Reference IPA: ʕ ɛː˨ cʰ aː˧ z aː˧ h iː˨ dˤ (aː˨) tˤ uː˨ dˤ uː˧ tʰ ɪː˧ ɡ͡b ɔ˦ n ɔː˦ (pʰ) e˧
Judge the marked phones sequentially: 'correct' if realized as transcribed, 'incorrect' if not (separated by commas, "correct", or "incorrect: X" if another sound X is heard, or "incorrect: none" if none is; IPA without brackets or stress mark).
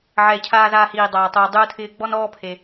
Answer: correct, correct